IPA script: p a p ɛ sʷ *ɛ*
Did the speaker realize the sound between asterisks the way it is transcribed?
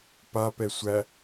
no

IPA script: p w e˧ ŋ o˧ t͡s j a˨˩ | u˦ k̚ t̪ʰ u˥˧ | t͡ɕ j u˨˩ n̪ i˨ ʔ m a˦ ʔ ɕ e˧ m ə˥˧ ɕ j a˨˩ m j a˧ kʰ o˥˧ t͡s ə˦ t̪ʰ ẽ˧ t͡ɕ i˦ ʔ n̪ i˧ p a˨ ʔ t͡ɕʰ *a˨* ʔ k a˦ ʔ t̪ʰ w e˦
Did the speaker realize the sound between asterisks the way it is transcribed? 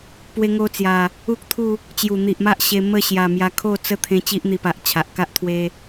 yes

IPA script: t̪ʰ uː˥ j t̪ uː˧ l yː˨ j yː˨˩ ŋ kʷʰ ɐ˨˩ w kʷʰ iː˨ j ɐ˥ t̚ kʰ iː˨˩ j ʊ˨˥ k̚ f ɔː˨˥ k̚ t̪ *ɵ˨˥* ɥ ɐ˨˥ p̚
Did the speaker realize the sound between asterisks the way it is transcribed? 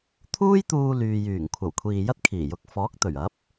no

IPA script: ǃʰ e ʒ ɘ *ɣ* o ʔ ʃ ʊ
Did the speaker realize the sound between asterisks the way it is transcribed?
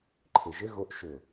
yes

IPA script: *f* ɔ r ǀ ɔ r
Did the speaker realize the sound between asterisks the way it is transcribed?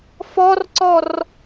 yes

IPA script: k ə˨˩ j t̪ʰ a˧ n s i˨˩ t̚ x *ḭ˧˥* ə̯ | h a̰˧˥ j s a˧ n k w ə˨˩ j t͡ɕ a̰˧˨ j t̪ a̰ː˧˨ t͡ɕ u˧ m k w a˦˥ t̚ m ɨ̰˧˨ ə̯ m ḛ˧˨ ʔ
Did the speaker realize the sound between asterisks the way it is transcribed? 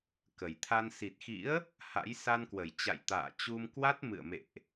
yes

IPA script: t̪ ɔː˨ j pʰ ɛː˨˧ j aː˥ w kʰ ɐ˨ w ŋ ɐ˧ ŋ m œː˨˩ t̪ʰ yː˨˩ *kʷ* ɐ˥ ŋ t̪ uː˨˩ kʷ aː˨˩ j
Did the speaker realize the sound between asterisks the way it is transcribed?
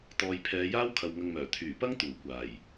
no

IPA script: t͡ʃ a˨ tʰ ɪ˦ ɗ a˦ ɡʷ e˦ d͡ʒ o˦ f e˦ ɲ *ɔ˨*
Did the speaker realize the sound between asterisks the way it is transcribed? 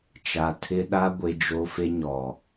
yes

